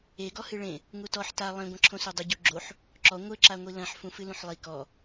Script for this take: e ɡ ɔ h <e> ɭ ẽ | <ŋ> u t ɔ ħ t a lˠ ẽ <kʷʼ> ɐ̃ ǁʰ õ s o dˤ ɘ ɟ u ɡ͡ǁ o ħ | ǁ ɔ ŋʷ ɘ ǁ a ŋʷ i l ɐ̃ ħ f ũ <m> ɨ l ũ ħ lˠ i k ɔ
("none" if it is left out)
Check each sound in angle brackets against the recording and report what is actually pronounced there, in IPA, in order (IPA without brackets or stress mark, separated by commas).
ɨ, ŋ, ɡʷ, f